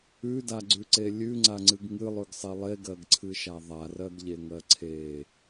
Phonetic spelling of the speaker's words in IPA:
ʉ d a ɡ͡ǀ ʉ ǀ e lʲ ʉ ŋ͡ǀ a ŋ͡ǀ ɨ ɡ ŋ ɨ lˠ ʉ ɡ sˤ e lˠ e ɡ ɜ ɡ ǀʰ ɨ ʃ a ðˤ a r ɜ ɡ ʎ e ŋ ɜ ǀʰ e

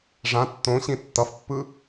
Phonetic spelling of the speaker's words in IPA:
ʐ ã tː õ ɕ ĩ tː ʌ f pː ɯ

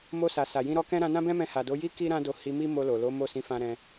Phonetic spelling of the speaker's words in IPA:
m o˧ s a˨ s a˨ j ĩ˧ ɾ ɔ˧ k ɛ̃˦ ɾ ã˧ n ã˦ b ɛ̃˦ m ɛ̃˧ h a˨ d o˨˦ j i˦ k i˦ ɾ ã˦ d o˧ h i˧ m i˦ m o˧ l o˨ l o˨˦ m o˦˨ s ĩ˨˦ f ã˧ ɾ ɛ̃˧

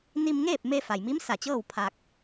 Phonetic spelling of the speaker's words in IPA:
n i˧ m ŋ eː˥˨ p̚ m e˧ f a˩ j m i˧˥ m s a˧˩ t͡ɕ ɤː˥˨ w pʰ a˧ k̚

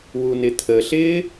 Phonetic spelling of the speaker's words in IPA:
w u n ɪ t̪ʰ ə ɬ ɪː

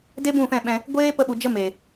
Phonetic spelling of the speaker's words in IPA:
d e˦ b ũ˦˨ f ɛ̃˦˨ ɓ ɛ̃˧ | ɡʷ eː˦ p ə˧ ɓ u˨ d͡ʒ ə˧ m e˨

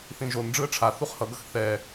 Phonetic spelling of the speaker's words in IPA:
θ ĩ ʒ o n ɖ͡ʐ ɯ ə̯ ʈ͡ʂʰ a θ u χ h ʌ ɡ ʌ x θ ɛ

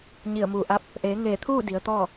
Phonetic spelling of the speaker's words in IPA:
ɲ i˧˩ ə̯ m uː˧˩ ʔ a˧˥ p̚ | ʔ eː˩˧ ŋ eː˧˩ t̪ʰ uː˥˨ d i˩˧ ə̯ t̪ ɔː˥˨

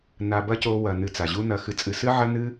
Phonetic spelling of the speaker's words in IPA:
n a˧ b ɐ˦ c o˧ w ɐ˨ n ɨ˨ t͡s a˨ ʑ u˦ n ɐ˧ x ɨ˧ t͡sʼ ɨ˧ s ɨ˦ ʕ ɐ˦ n ɨ˦

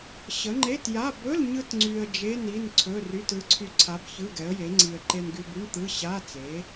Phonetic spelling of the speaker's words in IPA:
ɕ ə˨˥ ŋ͡ǃ e˧˥˧ t j a˧˥˧ b ɵ˧˥˧ l ɲ ɯ˧ t ŋ͡ǀ y˧ ə̯ d͡ʒ e˧˥˧ n i˧˥˧ n ǀʰ ɵ˧˥˧ r y˧˥˧ t ɯ˨˥ ǀʰ y˧ ǀʰ a˨˥ b ç ɯ˧˥˧ ɡ ɛ˨˥ ə̯ j e˨˥ ŋ͡ǀ i˧ ə̯ ǃ e˧ n ɡ y˧ b y˧˥˧ ɳ t̪ ɯ˧˥˧ ɕ a˧˥˧ t͡s e˨˥

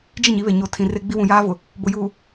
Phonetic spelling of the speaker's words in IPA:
d͡ʒ i˦˨ ɲ i˨˦ β e˨ ɲ o˨ tʰ ĩ˨ r e˦ ɡ͡b i˦ w ũ˨ j aː˦ v ʊ˨ | b ʊ˨ j uː˨

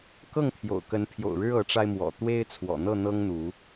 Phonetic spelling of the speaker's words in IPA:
k ɤ˥˨ ŋ t̪ʰ j o̰˨˩ ʊ̯ k ə˨˦ n pʰ j o̰˨˩ ʊ̯ ɻ ɻ̩˦ ɤ˨˦ ʈ͡ʂ a˧ ɪ̯ m w ɔ̰˨˩ t̪ w e˦ ɪ̯ t͡sʰ w ɔ̰˨˩ n̪ ɤ˥˨ n̪ ɤ˦ ŋ n̪ u˨˦

